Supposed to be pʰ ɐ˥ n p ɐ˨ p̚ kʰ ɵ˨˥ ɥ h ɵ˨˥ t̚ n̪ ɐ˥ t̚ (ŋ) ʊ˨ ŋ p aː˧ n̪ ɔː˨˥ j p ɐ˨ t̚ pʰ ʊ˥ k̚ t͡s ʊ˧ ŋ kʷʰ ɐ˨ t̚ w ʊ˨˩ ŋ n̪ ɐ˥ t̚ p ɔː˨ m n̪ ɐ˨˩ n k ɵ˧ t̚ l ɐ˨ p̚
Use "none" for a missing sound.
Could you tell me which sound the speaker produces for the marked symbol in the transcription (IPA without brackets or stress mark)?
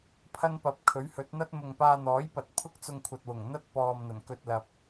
m